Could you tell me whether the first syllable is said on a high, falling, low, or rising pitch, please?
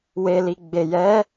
low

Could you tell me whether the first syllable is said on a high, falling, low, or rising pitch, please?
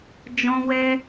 high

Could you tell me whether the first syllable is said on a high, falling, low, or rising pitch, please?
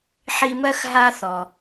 high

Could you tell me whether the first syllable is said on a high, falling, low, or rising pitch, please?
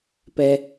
low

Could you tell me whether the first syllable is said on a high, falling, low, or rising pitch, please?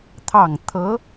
low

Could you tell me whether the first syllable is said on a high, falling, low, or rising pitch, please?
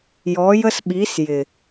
rising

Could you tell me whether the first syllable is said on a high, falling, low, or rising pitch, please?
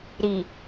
low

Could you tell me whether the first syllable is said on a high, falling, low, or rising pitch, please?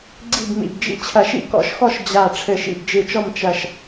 falling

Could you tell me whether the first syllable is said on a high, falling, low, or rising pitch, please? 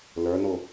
rising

